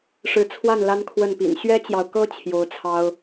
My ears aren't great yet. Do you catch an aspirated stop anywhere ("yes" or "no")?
yes